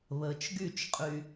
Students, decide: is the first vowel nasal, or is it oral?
oral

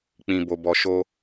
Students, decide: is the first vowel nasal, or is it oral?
nasal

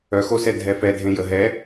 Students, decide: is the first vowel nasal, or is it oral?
oral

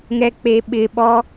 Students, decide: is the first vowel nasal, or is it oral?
oral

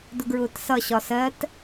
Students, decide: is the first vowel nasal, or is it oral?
oral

